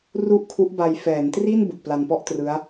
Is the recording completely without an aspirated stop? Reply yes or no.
no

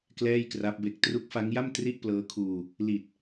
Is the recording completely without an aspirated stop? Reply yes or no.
no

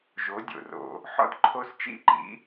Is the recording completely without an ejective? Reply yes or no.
yes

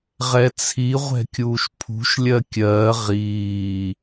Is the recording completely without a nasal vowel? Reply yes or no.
yes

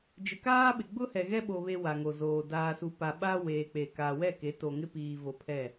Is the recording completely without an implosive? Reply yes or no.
no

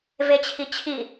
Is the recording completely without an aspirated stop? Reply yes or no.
no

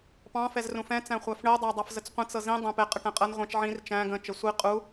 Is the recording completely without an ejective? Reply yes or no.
no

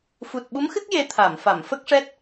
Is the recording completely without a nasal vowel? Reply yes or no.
yes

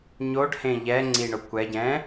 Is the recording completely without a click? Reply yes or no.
no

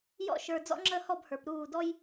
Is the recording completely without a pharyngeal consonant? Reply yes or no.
yes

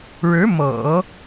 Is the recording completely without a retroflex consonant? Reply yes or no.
no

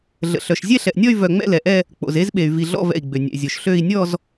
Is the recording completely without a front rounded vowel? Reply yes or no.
no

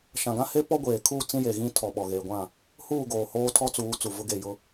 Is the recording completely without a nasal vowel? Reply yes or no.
no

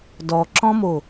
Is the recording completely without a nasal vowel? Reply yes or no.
no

